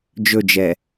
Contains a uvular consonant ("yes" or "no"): no